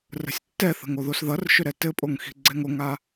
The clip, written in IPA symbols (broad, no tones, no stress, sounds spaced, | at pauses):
r ə̤ sʲ tː ɛ θ ə̤ ŋ o ð o s ð ʌ r ʃ ʏ ɾ ɛ t ɘ pʼ o ŋ x i̤ ɡ͡ǀ ɛ ŋ o ŋ a